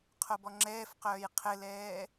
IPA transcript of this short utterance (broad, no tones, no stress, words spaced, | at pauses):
qʰobɔŋ͡ǁɛːfqœːj qʰɘlɛː